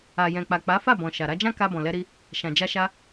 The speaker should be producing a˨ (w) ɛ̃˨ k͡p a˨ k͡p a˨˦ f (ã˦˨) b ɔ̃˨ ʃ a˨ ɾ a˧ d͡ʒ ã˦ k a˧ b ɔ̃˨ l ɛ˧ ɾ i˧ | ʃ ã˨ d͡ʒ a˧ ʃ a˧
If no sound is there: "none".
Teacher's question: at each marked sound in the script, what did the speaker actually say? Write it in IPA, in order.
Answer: j, a˦˨

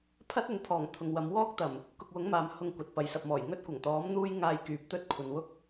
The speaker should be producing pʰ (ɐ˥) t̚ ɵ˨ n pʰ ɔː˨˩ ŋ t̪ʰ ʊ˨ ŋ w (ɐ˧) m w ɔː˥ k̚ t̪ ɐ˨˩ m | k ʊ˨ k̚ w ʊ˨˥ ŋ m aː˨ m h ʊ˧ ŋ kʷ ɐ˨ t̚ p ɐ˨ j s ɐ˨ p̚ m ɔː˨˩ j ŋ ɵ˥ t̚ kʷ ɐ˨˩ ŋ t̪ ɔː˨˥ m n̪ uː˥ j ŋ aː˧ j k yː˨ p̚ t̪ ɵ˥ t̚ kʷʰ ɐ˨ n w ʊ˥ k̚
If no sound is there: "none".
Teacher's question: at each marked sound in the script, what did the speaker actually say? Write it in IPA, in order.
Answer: ɐ˥, ɐ˨˧

